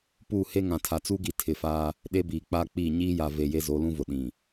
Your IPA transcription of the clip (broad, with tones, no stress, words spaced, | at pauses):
pu˦˨ he˦ ŋã˨tʰa˨t͡su˦ɡi˨ tʰɪ˨faː˦ | ɗe˦biː˨k͡pa˦k͡pi˦˨ ɲiː˦ja˨ ve˨ je˦zo˨˦lũ˦vʊ˨ ɗĩ˨